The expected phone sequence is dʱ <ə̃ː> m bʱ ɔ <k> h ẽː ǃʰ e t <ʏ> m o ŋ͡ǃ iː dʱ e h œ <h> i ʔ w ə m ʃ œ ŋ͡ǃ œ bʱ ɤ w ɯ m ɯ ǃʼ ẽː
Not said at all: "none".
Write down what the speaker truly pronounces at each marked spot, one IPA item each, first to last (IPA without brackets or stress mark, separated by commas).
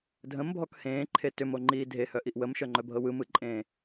ə̃, k, ʏ, ʔ